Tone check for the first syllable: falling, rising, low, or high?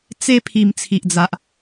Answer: high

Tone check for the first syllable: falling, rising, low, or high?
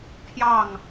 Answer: falling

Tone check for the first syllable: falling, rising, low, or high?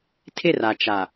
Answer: falling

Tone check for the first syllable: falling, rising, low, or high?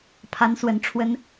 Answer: rising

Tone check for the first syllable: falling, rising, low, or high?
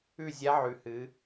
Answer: falling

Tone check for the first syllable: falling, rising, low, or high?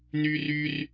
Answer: high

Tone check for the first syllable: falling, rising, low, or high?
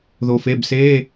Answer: low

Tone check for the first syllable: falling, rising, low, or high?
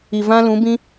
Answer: low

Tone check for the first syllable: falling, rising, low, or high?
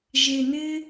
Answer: low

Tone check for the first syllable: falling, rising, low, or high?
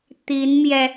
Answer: rising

